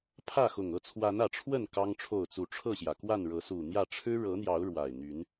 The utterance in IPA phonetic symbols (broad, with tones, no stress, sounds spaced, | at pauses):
pʰ ä˥˨ x ʊ˨˩ ŋ ɤ˥˨ t͡sʰ w a˨˦ n ä˨˩ ʈ͡ʂʰ w ə˥˨ n k ɑ˦ ŋ ʈ͡ʂʰ o˥˨ ʊ̯ t͡s u˨˩ ʈ͡ʂʰ ɤ˥˨ ɕ j ä˩ k w a˥˨ n ɻ ɤ˨˦ s u˨˩ n̪ j ä˥˨ ʈ͡ʂʰ ɻ̩˦ ɻ ɤ˨˦ n̪ j ɑ˨˦ ʊ̯ ɻ w a˨˩ ɪ̯ n̪ y˨˦ n